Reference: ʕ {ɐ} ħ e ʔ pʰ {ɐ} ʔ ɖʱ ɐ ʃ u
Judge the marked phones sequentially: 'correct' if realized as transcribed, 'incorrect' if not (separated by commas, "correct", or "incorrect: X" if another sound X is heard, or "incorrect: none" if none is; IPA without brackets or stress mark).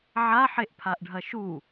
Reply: incorrect: a, incorrect: a